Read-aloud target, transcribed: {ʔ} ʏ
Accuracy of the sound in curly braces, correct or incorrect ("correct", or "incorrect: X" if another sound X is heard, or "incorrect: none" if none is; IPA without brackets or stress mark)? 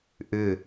correct